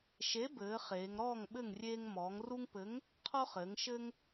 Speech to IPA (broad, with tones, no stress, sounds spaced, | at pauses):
ʃ e˨˥ b ɘː˩˧ χ eː˩˧ ŋ ɾ ɔː˥˨ ŋ ɓ ɘ˥˨ ŋ rʲ eː˦ ŋ m ɔː˩˧ ŋ r u˦ ŋ p ɘ˨˥ ŋ | qʰ ɔ˦ χ ɘː˩˧ ŋ ʃ ɘ˦ ŋ